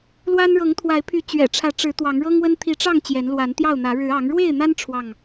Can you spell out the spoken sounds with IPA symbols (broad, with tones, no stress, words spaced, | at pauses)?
lwa˦n ɻɤ˨˦ŋt̪ʰwa˨˦ɪ̯pʰy˨˦ t͡ɕɥɛ̰˨˩ʈ͡ʂʰä˨˦ʈ͡ʂɻ̩˨˦ t̪wɑ˨˦ŋɻɤ˦ŋwə˦n t̪ʰi˨˦ʈ͡ʂɑ˥˨ŋ t͡ɕjɛ˨˦nlwa˨˦nt̪jɑ˥˨ʊ̯n̪ä˨˦ ɻɻ̩˨˦ɑ˨˦ŋ ɻwe˥˨ɪ̯n̪a˦n ʈ͡ʂʰwɑ˥˨ŋ